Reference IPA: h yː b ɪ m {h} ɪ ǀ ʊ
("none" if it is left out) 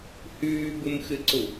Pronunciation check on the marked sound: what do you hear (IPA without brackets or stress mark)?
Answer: x